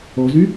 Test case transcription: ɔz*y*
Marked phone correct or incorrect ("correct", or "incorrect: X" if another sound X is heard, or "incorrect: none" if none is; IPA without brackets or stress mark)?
correct